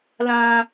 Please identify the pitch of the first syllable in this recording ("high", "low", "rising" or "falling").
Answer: high